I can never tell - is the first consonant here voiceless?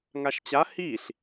no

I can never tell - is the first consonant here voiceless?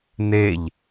no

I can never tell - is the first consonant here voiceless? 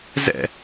no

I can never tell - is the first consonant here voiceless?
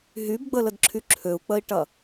no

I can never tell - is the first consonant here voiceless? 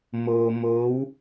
no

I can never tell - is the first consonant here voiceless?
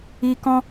yes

